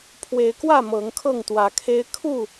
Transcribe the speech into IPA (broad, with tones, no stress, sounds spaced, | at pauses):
pʰ w e˨˦ ɪ̯ k w ä˥˨ m ɤ˨˦ ŋ kʰ ɤ˥˨ ŋ t̪ w ä˨˦ kʰ e˦ ɪ̯ kʰ u˥˨